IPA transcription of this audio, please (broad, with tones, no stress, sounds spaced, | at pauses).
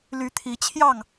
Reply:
l y˨˦ t̪ʰ i˨˦ t͡ɕʰ j ɑ˥˨ ŋ